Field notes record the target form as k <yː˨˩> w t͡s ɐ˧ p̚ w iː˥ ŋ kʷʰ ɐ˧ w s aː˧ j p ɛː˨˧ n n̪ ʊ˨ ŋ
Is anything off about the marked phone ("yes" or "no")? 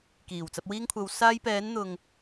yes